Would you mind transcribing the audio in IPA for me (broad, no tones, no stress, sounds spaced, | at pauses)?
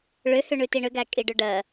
ɭ ʏ h ʏ ɳ ʉ t i ɳ ʏ ɡ æ kʼ i ɖ ʏ ɖ ɜ